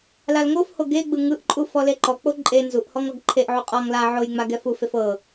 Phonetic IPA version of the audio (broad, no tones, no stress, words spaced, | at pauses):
lalŋofho ɡeɡ͡bɯ ŋɯʔǃʼu fɔleǃɔk͡po ǃʼe nzuʔhɔŋ ɔɡǃʰeʔʕu qʼɔŋ la ʕoj ŋ͡maɡɛfufef ɤ